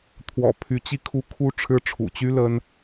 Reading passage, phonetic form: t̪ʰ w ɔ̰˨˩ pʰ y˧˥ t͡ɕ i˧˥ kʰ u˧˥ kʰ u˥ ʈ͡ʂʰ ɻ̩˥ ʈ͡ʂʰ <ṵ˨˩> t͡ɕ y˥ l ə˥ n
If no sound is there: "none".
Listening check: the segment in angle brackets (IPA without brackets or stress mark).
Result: ṵ˨˩